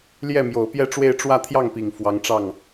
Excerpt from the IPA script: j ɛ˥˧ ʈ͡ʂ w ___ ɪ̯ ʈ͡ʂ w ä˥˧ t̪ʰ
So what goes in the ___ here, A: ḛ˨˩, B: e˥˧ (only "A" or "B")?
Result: B